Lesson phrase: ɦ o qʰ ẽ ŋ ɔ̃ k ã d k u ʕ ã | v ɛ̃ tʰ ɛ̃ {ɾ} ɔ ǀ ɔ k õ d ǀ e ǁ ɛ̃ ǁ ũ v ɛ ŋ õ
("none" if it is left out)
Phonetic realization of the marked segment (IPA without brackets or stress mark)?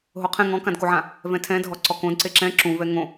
dʱ